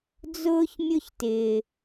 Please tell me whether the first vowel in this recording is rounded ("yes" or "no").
yes